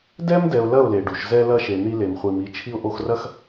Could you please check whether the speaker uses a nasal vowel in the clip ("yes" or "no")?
no